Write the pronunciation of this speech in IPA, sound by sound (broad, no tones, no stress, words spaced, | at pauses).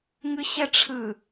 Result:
ŋɯɕɛʈ͡ʂʰɯ